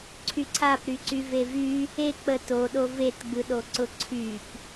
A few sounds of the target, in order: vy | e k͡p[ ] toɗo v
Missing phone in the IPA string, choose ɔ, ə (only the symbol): ə